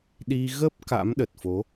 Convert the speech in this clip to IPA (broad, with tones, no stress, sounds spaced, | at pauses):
ɗ i˧ ɣ ə˦˥ p̚ k a̰˧˥ m ɗ ə˨˩ t̚ f o˨˦